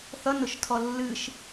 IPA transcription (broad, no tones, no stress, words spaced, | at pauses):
θʌnʊʃtʰɔ lːɨʃ